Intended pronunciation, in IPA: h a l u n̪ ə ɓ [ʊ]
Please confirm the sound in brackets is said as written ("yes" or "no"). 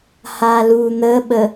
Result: no